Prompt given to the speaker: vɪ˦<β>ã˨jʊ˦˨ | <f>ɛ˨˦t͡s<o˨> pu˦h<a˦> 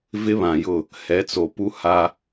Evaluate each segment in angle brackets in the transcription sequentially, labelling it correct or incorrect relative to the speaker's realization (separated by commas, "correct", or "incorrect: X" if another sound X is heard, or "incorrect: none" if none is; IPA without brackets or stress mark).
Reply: correct, incorrect: h, correct, correct